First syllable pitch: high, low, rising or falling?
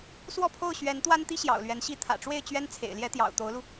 falling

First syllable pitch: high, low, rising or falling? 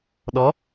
rising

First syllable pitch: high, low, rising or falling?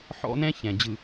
high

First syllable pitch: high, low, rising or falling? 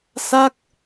falling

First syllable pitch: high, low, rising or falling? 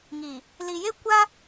low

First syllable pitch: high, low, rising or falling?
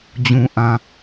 low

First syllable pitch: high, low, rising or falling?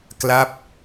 falling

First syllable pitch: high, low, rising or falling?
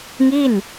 falling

